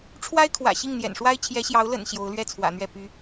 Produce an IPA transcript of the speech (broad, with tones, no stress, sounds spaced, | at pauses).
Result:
ʈ͡ʂʰ w a˥ ɪ̯ kʰ w ä̰˨˩ ɕ i˥˩ ŋ n̪ j ɛ̰˨˩ n ʂ w a˥ ɪ̯ t͡ɕʰ j ɛ˧˥ ɕ j ɑ˧˥ ʊ̯ l ə̰˨˩ n ɕ j o˧˥ ʊ̯ l ɥ ɛ˥˩ t͡sʰ w ä̰˨˩ n̪ ɥ ɛ˥˩ p y˧˥